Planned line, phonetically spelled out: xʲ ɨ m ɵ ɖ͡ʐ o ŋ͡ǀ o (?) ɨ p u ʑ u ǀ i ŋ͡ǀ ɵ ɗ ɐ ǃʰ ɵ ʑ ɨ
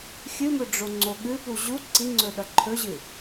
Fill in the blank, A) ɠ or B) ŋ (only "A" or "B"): A